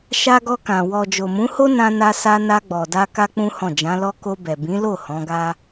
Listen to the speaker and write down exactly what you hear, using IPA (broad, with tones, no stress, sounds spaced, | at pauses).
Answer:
ʃ a˧ ɡ ɔ˧ k ã˨ w ɔ˨ d͡ʒ o˨ m ũ˨˦ h o˦ n ã˧ n a˧ s a˧ n a˧ ɡ͡b ɔ˨ d a˧ k a˦ k͡p ũ˦ h ɔ̃˦˨ d͡ʒ ã˨˦ l ɔ˦ k o˧ b ɛ˨ b ĩ˨˦ l o˦˨ h ɔ̃˨˦ ɡ a˦